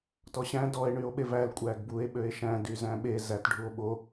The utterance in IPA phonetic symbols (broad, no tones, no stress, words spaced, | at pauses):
tɔɕæ̃ dɔe̯ɳyo̯ɓev æl kʷʼæɡbue̯ ɓøe̯ʃæ̃ dyzæ̃ɓe zætɖʱuo̯ ɓo